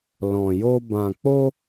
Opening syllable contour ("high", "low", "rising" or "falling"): low